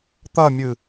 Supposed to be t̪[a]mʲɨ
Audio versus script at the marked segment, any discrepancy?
yes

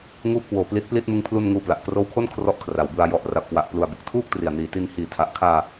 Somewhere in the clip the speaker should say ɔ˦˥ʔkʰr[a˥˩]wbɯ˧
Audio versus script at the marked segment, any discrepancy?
yes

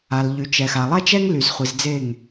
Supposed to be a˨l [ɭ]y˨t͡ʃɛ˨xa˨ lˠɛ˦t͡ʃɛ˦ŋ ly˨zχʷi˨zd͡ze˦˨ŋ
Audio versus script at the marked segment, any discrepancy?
yes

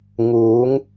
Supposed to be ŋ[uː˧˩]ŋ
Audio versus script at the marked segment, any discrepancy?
yes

